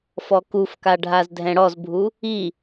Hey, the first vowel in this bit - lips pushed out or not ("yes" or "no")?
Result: yes